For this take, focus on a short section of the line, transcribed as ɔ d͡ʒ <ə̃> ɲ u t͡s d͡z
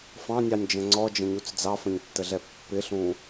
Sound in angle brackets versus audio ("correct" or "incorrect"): correct